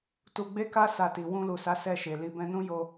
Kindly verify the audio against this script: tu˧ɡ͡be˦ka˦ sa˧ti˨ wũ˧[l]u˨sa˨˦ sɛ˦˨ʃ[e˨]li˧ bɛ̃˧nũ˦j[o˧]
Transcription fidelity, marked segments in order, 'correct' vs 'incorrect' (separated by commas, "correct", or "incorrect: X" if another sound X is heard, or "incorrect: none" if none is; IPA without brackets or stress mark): correct, correct, correct